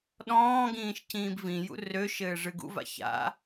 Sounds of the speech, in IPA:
ɗɔ̃ːɡĩːʃ cĩːbvĩjṵ røʃɘː ʐɨɡṵva̰ ça̰

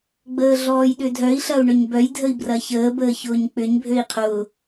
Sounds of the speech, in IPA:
ɡ͡bəːɮɔːjɗʏdʱœi̯ ɬɐu̯ɳʏɲbœj dʱəi̯brɐçəː bəːçʊːɲk͡pʏɲ bʱøi̯qʰʊː

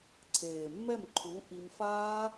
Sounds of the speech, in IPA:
ǀʰeː˨mːɛ˦˨mǃʰu˨˦ ʔi˧m faː˦

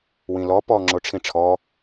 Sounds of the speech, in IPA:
wĩlɔ pɔ ŋ͡ǁoʈ͡ʂʰĩʈ͡ʂʰɔ

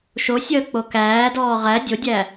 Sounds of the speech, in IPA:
ʃosʲəː k͡pokæːdɔː ʁæ dʲodʲæ

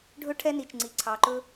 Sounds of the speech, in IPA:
ɖʱɵ˦ʈʰɛ˦ni˨t͡ʃ ŋ͡ǀi˨ǀʰɑ˨ǃɵ˦

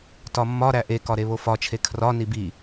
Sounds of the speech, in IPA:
tɒmːɒ ɾæʔekɒ ɾeβofɒt͡ʃʰe kʰrɒ nibi

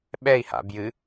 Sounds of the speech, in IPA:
ɓɛi̯ha̰ bjɨ

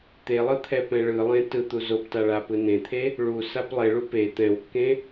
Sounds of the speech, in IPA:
t̪elˠɯ t̪ʰɛpɛ̃ɭɯlˠẽ tɯt̪u zopta ɭapɯnẽt̪ʰe | ɭu saplˠeɭu pe t̪ɛ̃wkːẽ

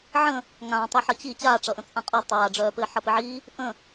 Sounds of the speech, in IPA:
ʕə̃ | ŋãtˤi ħʌt͡ɕi t͡ɕaːʈ͡ʂʌʔə̃ t͡sʼãqʼɒ tˤaːɖ͡ʐœː pɘːħʌpɘʕiː | ʔə̃

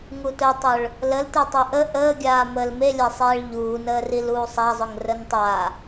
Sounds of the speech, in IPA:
ŋutœtˤʊɭ | ləlte tˤoʔə ʔəːɡʲaː məːlmelʲasˤeːɭ ʎuːnəːril uːsˤazˤʊŋ rəntˤa

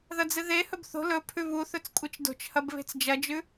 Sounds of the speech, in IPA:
ðɐd͡zɨðehɵb θo̤ lɵ pʰʉβuθɵt͡s kʷʼɨt͡ʃdo̤t͡ʃhɐb βe̤t͡sd͡ʒɐd͡ʒʉ

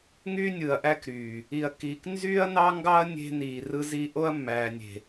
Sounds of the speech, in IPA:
ŋy˦nʲɯ˨ɐ̯ʔæ˦kɾyː˨ | i˨ɐ̯kiː˨k nzyː˦ɐ̯nɑ˦ ŋɡɑ˦ɐ̯ nʲe̤˦niː˨rɯ˦zi˦ ʔo˦ɐ̯mːæː˨nʲe̤˨

